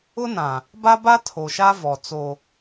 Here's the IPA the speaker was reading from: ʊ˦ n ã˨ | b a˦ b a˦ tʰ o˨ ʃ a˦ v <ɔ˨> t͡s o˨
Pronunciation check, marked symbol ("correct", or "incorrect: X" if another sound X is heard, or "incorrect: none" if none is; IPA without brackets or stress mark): correct